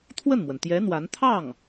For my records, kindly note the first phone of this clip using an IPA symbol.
t̪ʰ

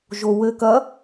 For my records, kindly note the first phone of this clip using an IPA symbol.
ʒ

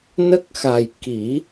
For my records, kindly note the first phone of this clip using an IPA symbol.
n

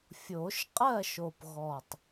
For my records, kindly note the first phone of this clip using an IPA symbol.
fʲ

